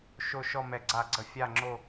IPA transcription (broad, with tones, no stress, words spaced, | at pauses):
ʃo˦˨ ʃɔ˦˨mɛ˧˩˧ɡ͡ǀa˧˩˧ɡ͡ǀə˧˩˧ fʲa˦˨ŋ͡ǁo˦˨